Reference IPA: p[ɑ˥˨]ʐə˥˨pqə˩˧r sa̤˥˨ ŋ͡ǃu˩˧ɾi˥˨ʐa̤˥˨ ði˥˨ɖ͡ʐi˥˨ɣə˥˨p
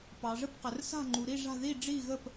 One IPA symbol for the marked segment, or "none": ɑ˩˧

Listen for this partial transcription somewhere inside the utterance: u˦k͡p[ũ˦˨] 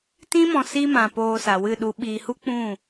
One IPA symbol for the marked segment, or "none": ũ˦˨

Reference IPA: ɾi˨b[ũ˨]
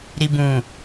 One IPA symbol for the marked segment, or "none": ũ˨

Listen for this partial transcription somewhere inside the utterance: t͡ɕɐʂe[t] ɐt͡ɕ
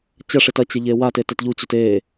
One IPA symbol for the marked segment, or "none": t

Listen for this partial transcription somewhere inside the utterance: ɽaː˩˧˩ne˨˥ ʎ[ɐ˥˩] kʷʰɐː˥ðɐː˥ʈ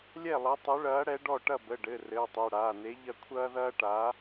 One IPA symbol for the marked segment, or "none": ɐ˥˩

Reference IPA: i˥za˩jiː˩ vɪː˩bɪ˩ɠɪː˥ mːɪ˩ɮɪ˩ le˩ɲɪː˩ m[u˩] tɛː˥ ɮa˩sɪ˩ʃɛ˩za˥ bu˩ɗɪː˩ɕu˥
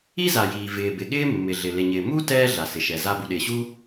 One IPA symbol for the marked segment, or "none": u˥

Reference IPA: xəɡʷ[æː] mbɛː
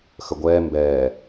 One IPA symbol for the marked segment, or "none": ɛː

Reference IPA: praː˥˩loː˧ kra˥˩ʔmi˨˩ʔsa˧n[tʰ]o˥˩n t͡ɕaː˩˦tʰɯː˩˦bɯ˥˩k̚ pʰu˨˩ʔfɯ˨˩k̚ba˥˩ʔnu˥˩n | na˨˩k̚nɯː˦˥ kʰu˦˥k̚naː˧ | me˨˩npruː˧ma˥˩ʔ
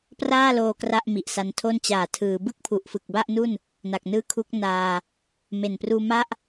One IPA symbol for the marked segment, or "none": tʰ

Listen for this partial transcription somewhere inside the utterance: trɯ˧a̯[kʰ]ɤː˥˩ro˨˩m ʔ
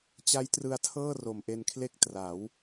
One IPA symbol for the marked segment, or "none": tʰ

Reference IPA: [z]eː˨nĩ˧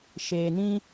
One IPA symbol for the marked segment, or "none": ʃ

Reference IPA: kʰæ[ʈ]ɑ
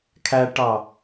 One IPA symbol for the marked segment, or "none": ʈ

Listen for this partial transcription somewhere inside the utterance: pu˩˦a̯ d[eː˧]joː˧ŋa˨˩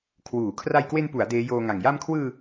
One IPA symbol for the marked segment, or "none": eː˦˥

